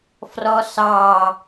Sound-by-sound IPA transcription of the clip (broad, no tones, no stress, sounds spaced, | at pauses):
f r ɔ s ɑ